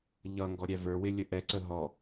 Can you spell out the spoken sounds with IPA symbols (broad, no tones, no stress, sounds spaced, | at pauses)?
ʎ ʌ ŋ ɡ ɔ ɾʲ æ v ə˞ w ɪ lʲ ə ʔ ɛ ǀ ə ɦ ɔ